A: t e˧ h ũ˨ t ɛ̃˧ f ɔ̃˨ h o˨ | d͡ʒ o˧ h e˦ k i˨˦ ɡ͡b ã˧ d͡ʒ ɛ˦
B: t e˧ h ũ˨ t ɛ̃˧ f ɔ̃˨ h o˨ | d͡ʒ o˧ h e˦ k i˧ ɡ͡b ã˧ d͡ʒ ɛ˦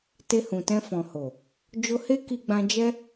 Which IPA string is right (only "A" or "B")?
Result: B